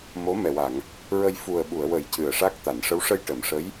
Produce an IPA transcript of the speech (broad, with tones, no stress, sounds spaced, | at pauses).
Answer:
m o˧˥ m ɛ˨˩ w a˨˩˨ ŋ | ɹ ə˧ j f u˨˩ ə̯ ɓ u˨˩˨ ə̯ w ə˨˩˦ j c ɨ˨˩ ə̯ ʂ a˦˥ k̚ t̪ a˨˩˨ n ʂ ə˧˥ w ʂ ə˧ j ʈ ə˨˩˨ m ʂ ə˧˥ j